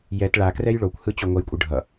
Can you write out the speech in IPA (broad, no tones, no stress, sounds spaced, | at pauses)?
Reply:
j ɛ t ɭ a k r ɛ j ɭ o kʷ h ɯ t͡ɕ o ŋʷ ʌ j kʷʼ ɯ ɖʱ ʌ